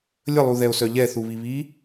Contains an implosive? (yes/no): no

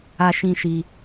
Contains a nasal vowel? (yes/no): yes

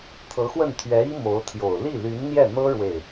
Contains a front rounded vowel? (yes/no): yes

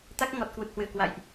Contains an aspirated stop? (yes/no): no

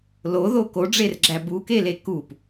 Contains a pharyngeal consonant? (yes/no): no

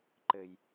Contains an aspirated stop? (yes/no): no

